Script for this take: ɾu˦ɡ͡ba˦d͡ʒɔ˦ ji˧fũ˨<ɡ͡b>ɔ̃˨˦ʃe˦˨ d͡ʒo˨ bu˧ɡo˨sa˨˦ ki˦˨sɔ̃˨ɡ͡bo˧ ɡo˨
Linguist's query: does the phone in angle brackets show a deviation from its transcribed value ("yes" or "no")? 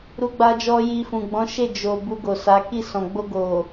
no